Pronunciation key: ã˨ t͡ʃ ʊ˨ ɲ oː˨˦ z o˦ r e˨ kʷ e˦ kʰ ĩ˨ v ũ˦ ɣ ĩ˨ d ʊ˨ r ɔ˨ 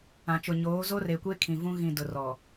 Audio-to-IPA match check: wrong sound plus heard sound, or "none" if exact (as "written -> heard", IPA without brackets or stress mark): none